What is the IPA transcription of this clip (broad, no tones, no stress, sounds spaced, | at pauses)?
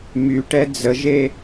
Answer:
m y ʈ ɛ d͡z ə ʒ e